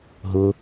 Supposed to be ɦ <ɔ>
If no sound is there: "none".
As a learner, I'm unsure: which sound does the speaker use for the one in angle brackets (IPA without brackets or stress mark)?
ʊ